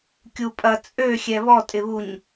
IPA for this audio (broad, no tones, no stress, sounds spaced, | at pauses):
kʲ u pʼ ɐ t͡sʼ ø xʲ ɛ β ɔ tʼ ɪ β u ɲ